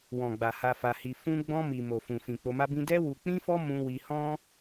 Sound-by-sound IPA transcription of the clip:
w ɔ̃˨ ɡ͡b a˨ h a˧ f a˧ h i˧ f ũ˧ ɡ͡b ɔ̃˧ m i˨ m o˨ f ũ˨ f ĩ˨ k͡p o˧ m a˦ b ĩ˦ d ɛ˦ w u˧ k͡p ĩ˦ f ɔ˦ m ũ˧ w i˧ h ɔ̃˦

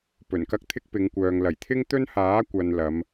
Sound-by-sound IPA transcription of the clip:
p ɵ˨˩ n k ɐ˥ k̚ t̪ʰ ɪ˥ k̚ p ɪ˨˧ ŋ kʷ œː˨ ŋ l ɐ˨˩ j t̪ʰ ɪ˥ ŋ t̪ ɵ˥ n h aː˨˥ kʷ ɐ˨ n l ɐ˨˧ m

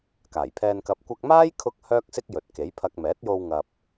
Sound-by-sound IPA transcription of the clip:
k aː˨˩ j pʰ ɛː˧ n k ɐ˧ p̚ kʷ ɐ˧ k̚ m aː˥ j kʰ ʊ˧ k̚ h œː˥ k̚ s ɪ˥ k̚ j ɵ˨ t̚ k e˨˥ j pʰ ɐ˧ k̚ m ɛː˨˥ t̚ j o˧ w ŋ ɐ˨ p̚

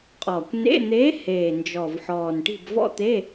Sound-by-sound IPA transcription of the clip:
qʼ ɔː˨˩ kʷ n ḛ˧˥˧ n̪ eː˧˥ h eː˨˩ n d͡ʒ ɔ˨˩ v ħ ɔː˨˩ n ʈ i̤˦˨ b v ɔ̰˥ t̪ e˧˥˧

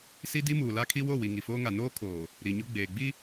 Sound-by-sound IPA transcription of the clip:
s i˦ d i˦ m uː˨ l a˦ kʰ i˦ w o˦˨ w i˨ ŋ i˨ f oː˦ ŋ a˨ n oː˦ kʰ oː˨ | ɾ i˨ ɲ ʊ˦ ɡ͡b eː˨ ɡ͡b i˦

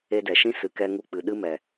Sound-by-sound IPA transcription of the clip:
e˧ d ɛ˨ ʃ ĩ˦ s ɨ˨ k ɛ˧ ŋ u˧ k͡p ɨ˨ ɗ ɨ˦ m ɛ˨

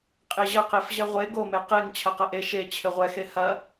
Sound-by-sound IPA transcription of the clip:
qʼ e ʑ ɐ q e f ʑ ɛ ʁʷ e ɡ o m e q e ŋ t͡ɕʰ ɐ q ɐ ʔ e ʃ e t͡ɕʰ ɘ ʁʷ ɛ x e h ɐ

